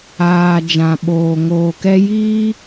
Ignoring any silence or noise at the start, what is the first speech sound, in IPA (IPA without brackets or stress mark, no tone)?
aː